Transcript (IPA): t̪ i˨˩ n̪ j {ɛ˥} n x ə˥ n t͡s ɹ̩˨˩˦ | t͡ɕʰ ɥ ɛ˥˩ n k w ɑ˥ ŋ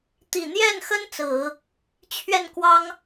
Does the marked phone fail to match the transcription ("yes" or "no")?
yes